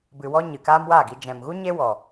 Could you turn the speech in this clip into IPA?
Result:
b ɨ˨ w ɔ˧ ɲ ɨ˨ k aː˦ m w aː˦˨ ɡ i˧ d͡ʒ ɛ̃˨ m ɣ u˦ ɲ e˦ w ɔ˨

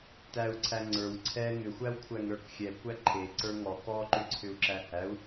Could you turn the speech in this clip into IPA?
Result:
t æ u̯ ǀʰ æ ŋ͡ǀ ə˞ w ǀʰ ɛ ŋ ʏ xʷ æ w kʷʰ æ ŋ ɾ ə˞ k xʲ ɛ kʷ æ ǃʰ e ǀ ə˞ ŋ ɔ k ɔ ǃ ʏ ǀʰ ʏ u̯ ǁ æ h æ u̯

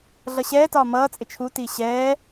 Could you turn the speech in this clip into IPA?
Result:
ɮ ʌ ɕ ɛː t ɒː m ʌː t͡sʼ ɪ t͡ʃʰ u t iː ɕ ɛː

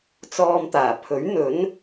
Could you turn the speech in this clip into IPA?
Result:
t͡s ɔː˧ m t̪ aː˨˩ pʰ ɵ˨˥ ɥ n̪ ɵ˨˥ n

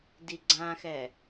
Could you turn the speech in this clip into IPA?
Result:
d i ɡ͡ǀ ã x ɛ

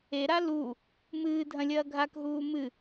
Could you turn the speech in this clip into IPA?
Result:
e ɾ a l u | m ɨː dʱ ɐ̃ lʲ ɐː ɡʱ a k ɦ uː m ɨ

